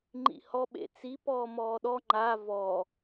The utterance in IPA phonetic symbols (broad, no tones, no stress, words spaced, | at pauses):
ŋ͡ǃḭhɔ ɓḛt͡si pɔːmɔːɗɔ ŋ͡ǃa vɔ